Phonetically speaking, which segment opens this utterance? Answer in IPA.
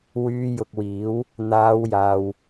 w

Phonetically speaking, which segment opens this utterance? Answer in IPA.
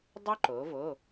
dˤ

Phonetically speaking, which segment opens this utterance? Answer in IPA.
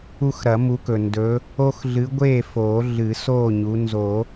u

